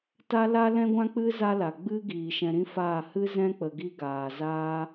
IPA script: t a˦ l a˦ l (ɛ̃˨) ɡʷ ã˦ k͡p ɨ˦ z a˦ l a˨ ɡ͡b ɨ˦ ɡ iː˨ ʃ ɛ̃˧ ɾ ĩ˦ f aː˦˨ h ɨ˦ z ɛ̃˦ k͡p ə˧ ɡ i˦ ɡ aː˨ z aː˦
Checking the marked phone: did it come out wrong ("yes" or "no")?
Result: yes